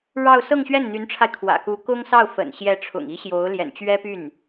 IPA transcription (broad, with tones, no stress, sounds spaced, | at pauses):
ɻ ɑ˥˧ ʊ̯ s ɤ˥˧ ŋ ɕ ɥ ɛ˥˩ n n̪ y˧˥ n ʈ͡ʂʰ a˧ ɪ̯ kʰ w ä̰˨˩ k u˧˥ k ʊ˥ ŋ s ɑ˥˩ ʊ̯ f ə̰˨˩ n ɕ j ɛ˧˥ ʈ͡ʂʰ ʊ̰˨˩ ŋ i˧˥ ɕ j o˧˥ ʊ̯ l j ɛ̰˨˩ n t͡ɕ ɥ ɛ˥ p y˥˩ n